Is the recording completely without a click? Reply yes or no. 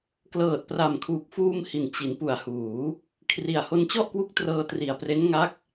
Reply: yes